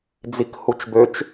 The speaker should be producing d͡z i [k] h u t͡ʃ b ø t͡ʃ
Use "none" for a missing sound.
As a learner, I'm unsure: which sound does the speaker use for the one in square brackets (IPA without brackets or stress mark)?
k